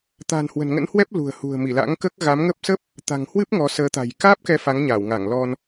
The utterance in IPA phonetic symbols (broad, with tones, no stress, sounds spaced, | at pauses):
t̪ a̤˨˩ n h w ə̤˨˩ n ŋ ə̰˧˥ n h w ɛ˦˥ p̚ l ṳ˨˩ ə̯ h ṳ˨˩ ə̯ m i˧˩ l a̰˧˥ ŋ k əː˦˥ k̚ ɣ a˨˦ m ŋ ə˦˥ p̚ s ə˦˥ p̚ | t̪ a̤˨˩ ŋ h w ɨ˦˥ p̚ ŋ ɔ˨˦ s əː˨˦ t̪ a̤˨˩ j k aː˦˥ p̚ k ɛ˨˦ f a˨˦ ŋ ɲ aː˧˩ w ŋ a˧˩ ŋ l ɔ˧ n